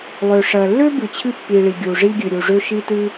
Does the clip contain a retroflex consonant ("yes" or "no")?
yes